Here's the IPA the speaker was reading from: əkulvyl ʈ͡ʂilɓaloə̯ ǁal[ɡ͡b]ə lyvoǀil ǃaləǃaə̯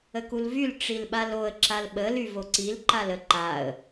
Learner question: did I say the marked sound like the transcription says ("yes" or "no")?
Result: no